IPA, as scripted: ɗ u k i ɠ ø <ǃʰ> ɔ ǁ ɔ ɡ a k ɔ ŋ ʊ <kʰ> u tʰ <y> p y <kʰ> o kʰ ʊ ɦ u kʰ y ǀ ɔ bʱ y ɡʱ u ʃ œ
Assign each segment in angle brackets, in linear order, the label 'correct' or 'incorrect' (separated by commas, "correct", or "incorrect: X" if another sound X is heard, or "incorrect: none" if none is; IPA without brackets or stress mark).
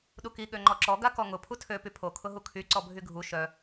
incorrect: ŋ͡ǃ, incorrect: pʰ, incorrect: ø, incorrect: pʰ